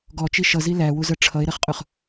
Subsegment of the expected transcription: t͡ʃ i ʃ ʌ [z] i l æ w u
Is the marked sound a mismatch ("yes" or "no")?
no